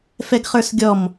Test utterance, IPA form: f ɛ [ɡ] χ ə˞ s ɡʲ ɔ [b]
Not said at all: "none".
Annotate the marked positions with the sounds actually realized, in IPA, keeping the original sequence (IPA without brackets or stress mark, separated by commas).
ɡ, m